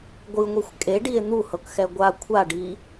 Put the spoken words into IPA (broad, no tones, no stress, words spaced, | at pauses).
ɡʷɯŋʷixʷ kʼeɖie̯ n̪uhɤkxɛ ɡʷa kʷʰaɖi